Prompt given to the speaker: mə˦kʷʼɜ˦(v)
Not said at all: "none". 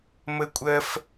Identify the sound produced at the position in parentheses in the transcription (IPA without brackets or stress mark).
f